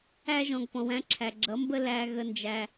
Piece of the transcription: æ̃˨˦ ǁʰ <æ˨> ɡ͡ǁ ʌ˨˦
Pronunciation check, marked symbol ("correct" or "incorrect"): correct